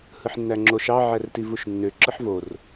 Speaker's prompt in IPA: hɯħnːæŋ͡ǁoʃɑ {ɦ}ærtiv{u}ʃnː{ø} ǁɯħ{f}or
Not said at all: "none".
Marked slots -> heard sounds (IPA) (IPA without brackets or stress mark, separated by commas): ʕ, u, ø, v